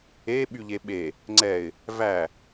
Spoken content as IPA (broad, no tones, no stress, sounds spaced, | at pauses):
e ɓ y ʎ e ɓ e | ŋ͡ǀ ɛ ɪ̯ | v æ